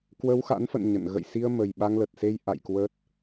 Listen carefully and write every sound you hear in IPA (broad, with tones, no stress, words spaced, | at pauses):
kwə˧wxa̰˧˥nfə̰˧˨n ɲə̰˧˨n ɣə̰˧˨jsi˧ə̯ mə˨˩jɓa˧ŋlə˨˩t̚se˧j ʔa̰˧˨jkwə˦˥t̚